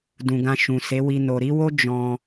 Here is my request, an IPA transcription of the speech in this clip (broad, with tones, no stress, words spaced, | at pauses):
dũ˨ɡã˧ʃũ˨ se˨˦wi˧ no˨ɾi˨˦wo˦ d͡ʒɔ̃˧